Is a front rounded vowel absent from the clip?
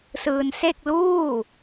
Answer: yes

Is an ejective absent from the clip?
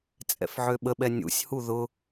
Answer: no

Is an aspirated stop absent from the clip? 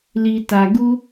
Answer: yes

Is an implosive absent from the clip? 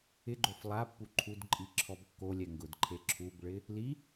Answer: yes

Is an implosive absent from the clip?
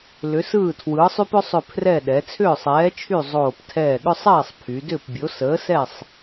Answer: no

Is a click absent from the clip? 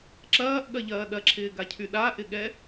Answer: no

